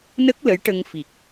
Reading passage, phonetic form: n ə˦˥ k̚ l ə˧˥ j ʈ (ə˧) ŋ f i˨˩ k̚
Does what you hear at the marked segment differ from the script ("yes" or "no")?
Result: no